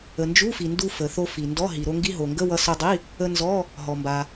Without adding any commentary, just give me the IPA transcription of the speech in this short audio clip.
ə˩ n d͡ʒ u˧˥˧ f i˩ n d u˧ f ə˩ θ o˧ f i˩ n d ɔ˧˥˧ ɦ i˩ ɾ o˧ ŋ ɡ i˧ ɦ o˩ ŋ ɡ ə˧˥˧ w ʌ˧ s œ˧ dˤ i˧˥˧ | ə˧ n z ɔ˧˥˧ | ɦ ɔ˩ m b a˩

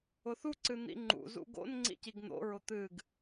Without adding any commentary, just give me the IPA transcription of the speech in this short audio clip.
ʊ θ u ǀ ɨ n̪ ḭ ŋ͡ǃ ṵ z ṵ ɡ o̰ n ŋ͡ǀ ḭ c i ɡ n̪ o̰ ɹ ʊ t̪ ɨ ɡ

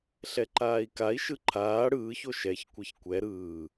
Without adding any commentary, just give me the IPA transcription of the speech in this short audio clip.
ɬ ɛ ǃ aː i̯ k a i̯ ʃ ɯ ǃʰ aː ɽ ɯː ç o ʃ ɛ ç kʷ ɛ ç kʷ ɛ ɾ ɯː

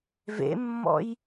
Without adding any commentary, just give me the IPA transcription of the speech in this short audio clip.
v ḛ mː ɔ̰ j

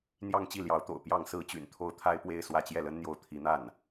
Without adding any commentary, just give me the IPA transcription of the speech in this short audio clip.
n̪ j ɑ˥˧ ŋ t͡ɕ i˥˩ l j ɑ˧˥ ʊ̯ t̪ o̰˨˩ ʊ̯ p j ɑ˥˩ ŋ s ɹ̩˥ t͡ɕ y̰˨˩ n t̪ʰ o˥˩ ʊ̯ t̪ʰ a˥ ɪ̯ p w e˥˧ ɪ̯ s w ä˥˧ t͡ɕ j ɛ˥˩ l ə˥ n n̪ j o˥˩ ʊ̯ t̪ʰ i˧˥ n̪ a˥˩ n

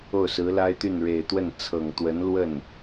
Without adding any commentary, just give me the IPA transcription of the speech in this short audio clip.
o˥˩ ʊ̯ s ɹ̩˧˥ l a˥ ɪ̯ t̪ y˥˩ n ɻ e˨˩ ɪ̯ t̪ w ə˥˩ n t͡sʰ ɤ˨˩ ŋ t̪ w ə˧˥ n l w ə˥˩ n

